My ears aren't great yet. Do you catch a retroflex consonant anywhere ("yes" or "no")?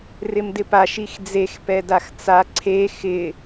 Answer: no